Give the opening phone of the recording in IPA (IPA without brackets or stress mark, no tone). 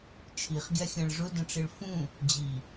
t͡ʃʰ